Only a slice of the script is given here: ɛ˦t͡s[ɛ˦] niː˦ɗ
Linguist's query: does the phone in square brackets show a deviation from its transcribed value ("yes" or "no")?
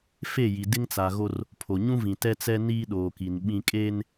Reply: no